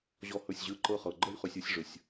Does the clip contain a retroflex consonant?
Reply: yes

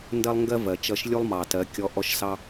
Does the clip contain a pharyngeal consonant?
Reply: no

